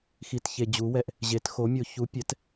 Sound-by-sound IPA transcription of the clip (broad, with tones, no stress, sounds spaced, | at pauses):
x i˧ t ç e˧ d͡ʑ u˨˥ w ɛ˧ ʔ | ʑ e˨˥ t x o˨˥ mʲ o˧ ç u˨˥ pʲ ɛ˨˥ t